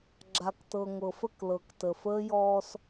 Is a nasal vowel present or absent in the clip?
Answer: absent